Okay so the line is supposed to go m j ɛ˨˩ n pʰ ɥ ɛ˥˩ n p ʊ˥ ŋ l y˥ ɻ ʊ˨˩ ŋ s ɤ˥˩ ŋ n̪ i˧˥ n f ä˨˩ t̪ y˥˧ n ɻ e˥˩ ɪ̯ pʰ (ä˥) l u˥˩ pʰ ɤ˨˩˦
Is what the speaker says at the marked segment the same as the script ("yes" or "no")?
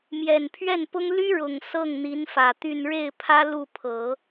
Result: yes